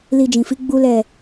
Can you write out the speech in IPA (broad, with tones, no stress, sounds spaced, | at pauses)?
l i˧ d͡ʒ ĩ˨ f i˨˦ ɡ͡b u˦ l ɛ˦˨